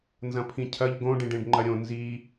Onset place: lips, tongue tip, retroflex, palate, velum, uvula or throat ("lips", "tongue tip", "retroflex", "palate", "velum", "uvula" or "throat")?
tongue tip